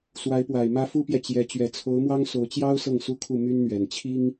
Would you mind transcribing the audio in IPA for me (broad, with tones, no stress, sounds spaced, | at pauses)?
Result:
s w a˧˥ ɪ̯ p w a˨˩ ɪ̯ m ä˥ f u˥ p j ɛ˨ t͡ɕ j ɛ˧˥ t͡ɕ ɥ ɛ˨˩ t͡sʰ o˧˥ ʊ̯ m w ɑ˥ ŋ s o˧˥ ʊ̯ t͡ɕ j ɑ˥ ʊ̯ s ɤ˥˩ ŋ s u˥ kʰ u˥˩ m y˥ n n̪ ɥ ɛ˨˩ n t͡ɕʰ i˥ ŋ